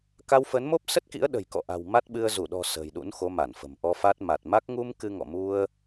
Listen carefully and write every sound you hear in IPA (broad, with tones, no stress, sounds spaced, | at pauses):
k a˧ w f ə˨˦ n m o˦˥ p̚ s ə˦˥ t̚ k ḭ˧˥ ə̯ ɗ ə̤˨˩ j k ɔ̰˧˨ ʔ a̤˨˩ w m a˦˥ t̚ ɓ ɨ˧ ə̯ z u˧˩ ɗ ɔ̤˨˩ s ə̤˨˩ j ɗ ṵ˧˥ n x o˨˦ m a˧˩ n f ə̤˨˩ m ʔ ɔ˧ f a˦˥ t̚ m a˨˩ t̚ m a˦˥ k̚ ŋ u˧ m k ɨ˧ ŋ ɔ̰˧˨ m u˧ ə̯